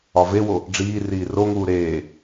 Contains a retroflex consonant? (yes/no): yes